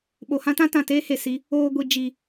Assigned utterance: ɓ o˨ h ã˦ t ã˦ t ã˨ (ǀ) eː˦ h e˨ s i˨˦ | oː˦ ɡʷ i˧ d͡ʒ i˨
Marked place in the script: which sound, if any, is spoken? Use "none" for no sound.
t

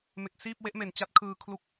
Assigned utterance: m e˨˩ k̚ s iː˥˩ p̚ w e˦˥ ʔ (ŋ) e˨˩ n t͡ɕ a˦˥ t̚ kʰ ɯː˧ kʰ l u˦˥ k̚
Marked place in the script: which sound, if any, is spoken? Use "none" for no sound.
m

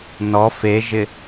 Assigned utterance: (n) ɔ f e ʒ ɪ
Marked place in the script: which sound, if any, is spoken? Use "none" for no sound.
n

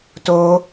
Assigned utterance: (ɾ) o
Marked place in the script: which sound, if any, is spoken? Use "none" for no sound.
t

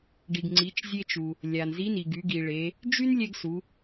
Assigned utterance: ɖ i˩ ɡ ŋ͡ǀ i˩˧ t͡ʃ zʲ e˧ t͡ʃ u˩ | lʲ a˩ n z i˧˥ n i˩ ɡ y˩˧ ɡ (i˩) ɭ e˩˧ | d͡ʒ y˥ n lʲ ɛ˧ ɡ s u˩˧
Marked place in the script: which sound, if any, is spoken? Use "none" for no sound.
i˩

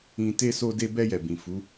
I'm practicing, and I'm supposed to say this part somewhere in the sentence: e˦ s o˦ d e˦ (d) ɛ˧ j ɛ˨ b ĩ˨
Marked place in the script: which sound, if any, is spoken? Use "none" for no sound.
b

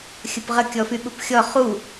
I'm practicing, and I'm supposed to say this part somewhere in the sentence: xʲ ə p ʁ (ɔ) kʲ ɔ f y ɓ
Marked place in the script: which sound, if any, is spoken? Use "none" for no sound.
ə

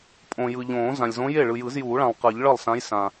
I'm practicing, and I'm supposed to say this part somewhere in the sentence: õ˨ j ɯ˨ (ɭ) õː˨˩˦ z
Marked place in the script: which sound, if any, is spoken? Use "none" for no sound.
ʎ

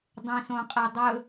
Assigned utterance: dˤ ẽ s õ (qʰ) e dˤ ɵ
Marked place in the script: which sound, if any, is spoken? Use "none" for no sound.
qʼ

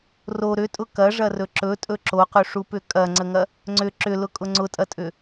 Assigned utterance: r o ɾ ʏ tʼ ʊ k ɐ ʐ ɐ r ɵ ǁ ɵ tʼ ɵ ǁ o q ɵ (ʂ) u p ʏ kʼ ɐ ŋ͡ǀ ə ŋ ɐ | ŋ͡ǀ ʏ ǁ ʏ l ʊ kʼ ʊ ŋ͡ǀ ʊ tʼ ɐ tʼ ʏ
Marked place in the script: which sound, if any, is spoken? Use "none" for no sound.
ʂ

